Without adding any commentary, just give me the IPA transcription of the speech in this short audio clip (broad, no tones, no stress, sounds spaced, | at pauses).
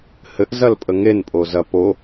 h ɘ ʔ z ɐ l pʼ ə ŋ e n pʼ o z ɐ p o